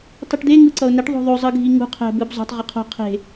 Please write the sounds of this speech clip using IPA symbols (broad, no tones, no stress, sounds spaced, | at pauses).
tˤ i ʈ d̪ e ŋ ɯ ǀ ʌ ʊ̯ n e ʈ ðˤ o̤ ðˤ o zˤ ɯ ɡʱ i ŋ ṳ qʰ ɛ̤ b ɯ b zˤ o̤ tˤ ʁ ʌ qʰ o̤ qʰ e̤